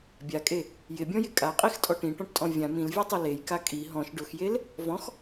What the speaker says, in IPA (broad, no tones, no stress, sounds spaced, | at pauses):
bʲ a kʼ e | j ɪ bʲ ɔ̃ j ɪ kʼ a qʼ i x tʼ ɔ ʈ ĩ ʈ ɔ̃ ʈ tʼ ɔ̃ vʲ ã m ĩ l vʲ ɛ tˤ o l e j k a kʼ i ɦ ɔ̃ ʃ ɖ ʊ x j e l | v ɔ̃ x